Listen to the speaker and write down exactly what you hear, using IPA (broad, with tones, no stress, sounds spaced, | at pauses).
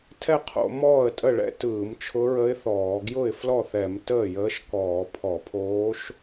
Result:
tʰ ɛ˥˩ qʰ o̰˧˩˧ m ɔː˥˩ ə̯ tʼ ə˥˩ ɭ ɛ̰˧˥ t ɯː˧˩˧ m t͡ʃʰ ʊ˧˥ ɹ ə˧˥ ɪ̯ θ ɔː˧˩˧ ɡ j ʊ˥˩ ɪ̯ f l ɔ˥˩ θ ɛ˧˩˧ m t əː˥˩ j əː˧˥ ʃ k ɔː˧˩˧ pʰ ɔ˧˩˧ pʰ oː˧˥ ʃ